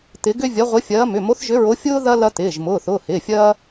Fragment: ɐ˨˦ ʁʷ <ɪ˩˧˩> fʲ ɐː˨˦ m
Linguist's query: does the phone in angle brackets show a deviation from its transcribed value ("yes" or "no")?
yes